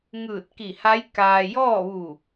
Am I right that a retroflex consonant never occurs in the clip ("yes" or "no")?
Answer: yes